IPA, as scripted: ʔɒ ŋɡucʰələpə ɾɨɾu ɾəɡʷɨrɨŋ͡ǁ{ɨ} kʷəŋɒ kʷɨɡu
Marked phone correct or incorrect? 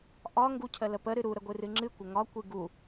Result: correct